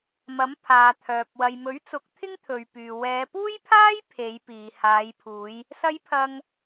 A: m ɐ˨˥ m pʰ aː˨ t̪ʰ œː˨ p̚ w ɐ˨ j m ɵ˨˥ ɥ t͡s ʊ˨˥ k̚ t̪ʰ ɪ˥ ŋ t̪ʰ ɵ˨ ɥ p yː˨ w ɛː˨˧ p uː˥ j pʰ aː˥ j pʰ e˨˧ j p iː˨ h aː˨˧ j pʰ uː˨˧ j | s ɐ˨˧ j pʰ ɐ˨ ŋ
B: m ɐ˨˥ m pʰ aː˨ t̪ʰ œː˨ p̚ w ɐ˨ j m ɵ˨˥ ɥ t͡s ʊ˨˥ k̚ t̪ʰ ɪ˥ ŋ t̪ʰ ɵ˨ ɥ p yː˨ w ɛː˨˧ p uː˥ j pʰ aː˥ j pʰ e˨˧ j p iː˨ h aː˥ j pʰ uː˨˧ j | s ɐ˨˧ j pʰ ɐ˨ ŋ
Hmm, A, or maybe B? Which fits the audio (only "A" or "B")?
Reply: A